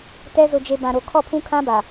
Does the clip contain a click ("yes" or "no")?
no